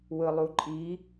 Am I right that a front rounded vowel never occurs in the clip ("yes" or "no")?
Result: yes